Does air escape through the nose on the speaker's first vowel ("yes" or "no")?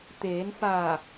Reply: no